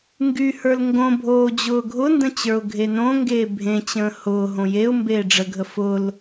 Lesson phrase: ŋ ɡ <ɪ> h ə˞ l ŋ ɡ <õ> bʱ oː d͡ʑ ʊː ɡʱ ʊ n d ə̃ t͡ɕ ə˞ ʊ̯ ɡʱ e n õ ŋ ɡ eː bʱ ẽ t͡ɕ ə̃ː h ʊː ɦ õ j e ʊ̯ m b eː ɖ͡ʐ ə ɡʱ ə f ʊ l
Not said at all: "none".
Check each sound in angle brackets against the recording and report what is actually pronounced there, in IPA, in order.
y, õ

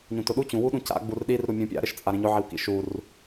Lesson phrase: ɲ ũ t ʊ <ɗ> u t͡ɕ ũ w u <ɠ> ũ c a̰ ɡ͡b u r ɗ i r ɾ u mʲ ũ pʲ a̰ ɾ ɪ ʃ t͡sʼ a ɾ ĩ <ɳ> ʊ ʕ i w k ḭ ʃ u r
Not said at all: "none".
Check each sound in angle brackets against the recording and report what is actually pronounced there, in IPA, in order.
ɗ, ɗ, ɲ

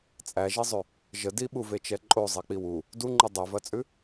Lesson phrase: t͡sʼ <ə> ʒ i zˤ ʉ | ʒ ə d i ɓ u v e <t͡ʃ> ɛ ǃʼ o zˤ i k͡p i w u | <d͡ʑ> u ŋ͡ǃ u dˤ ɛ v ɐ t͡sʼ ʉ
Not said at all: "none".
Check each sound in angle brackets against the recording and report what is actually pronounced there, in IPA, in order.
æ, t͡ʃ, d

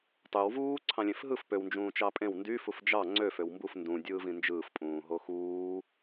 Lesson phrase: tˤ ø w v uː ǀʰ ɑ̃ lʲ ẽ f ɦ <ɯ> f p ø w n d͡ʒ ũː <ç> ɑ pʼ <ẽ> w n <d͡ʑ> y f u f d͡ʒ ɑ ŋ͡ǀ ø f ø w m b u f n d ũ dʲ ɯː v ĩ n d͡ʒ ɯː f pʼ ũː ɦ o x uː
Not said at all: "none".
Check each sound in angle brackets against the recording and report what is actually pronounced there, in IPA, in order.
ɯ, t͡ʃ, ẽ, d

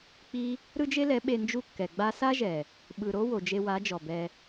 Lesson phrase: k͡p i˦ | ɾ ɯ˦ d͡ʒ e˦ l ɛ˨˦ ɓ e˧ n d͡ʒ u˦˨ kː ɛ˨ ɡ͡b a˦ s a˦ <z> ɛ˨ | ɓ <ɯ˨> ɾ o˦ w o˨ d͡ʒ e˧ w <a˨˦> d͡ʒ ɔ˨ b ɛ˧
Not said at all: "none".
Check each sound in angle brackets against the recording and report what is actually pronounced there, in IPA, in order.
ʒ, ɯ˨, a˨˦

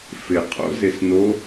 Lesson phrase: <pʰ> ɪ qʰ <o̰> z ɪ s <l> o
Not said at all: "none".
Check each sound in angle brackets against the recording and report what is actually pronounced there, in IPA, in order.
f, o̰, n

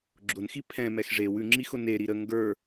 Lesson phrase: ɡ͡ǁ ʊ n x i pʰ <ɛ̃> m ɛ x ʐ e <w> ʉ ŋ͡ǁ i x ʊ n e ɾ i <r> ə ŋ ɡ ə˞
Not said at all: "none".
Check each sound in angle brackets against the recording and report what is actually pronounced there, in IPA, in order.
ɛ̃, w, ɾ

